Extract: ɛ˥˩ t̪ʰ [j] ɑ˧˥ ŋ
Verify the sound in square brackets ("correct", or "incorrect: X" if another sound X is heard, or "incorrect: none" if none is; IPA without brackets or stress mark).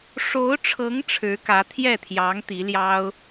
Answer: correct